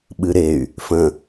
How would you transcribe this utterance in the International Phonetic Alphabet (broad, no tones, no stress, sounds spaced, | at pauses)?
ɓ ɨ ɾ e y̯ | f ə̃